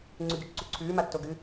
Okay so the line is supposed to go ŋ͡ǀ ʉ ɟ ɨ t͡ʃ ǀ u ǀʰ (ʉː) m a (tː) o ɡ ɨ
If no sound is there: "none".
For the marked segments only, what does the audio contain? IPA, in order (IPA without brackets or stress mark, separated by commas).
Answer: ʉː, tː